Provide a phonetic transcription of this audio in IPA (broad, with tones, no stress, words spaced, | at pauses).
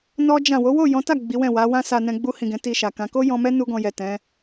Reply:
nɔ˦d͡ʒã˦˨ wo˨˦wo˦˨jɔ̃˨˦ta˦˨ ɡ͡bi˨˦wɛ̃˦˨wa˨˦ wã˦sa˧nɛ̃˧ ɡ͡bu˧hĩ˨ ɡɛ̃˨˦ti˧ʃa˨kã˨˦ ko˦jɔ̃˧mɛ˦ nu˦ɡɔ̃˧jɛ˨ tɛ̃˨˦